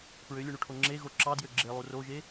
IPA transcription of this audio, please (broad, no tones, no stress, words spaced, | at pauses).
pɹølʲuɳuʈʰo ŋ͡ǁeɣo ǁɑdjø ɡ͡ǁelˠu roʒe